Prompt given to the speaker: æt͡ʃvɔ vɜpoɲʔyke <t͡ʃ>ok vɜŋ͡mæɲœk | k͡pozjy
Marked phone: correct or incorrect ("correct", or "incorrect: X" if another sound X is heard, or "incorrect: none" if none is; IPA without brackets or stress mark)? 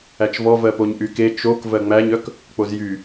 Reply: correct